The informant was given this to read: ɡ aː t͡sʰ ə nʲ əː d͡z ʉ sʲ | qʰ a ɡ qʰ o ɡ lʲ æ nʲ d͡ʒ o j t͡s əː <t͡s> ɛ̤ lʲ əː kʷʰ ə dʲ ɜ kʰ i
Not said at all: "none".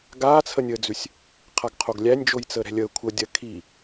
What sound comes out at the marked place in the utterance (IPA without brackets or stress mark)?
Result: ɾ